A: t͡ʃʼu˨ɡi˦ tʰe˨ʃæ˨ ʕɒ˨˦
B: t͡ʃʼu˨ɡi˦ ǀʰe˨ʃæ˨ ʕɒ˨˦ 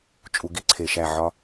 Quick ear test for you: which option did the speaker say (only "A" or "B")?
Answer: B